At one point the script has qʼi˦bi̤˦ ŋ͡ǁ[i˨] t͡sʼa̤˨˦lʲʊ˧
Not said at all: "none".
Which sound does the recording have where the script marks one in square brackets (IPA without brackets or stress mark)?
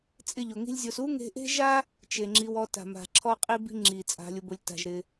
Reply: i˨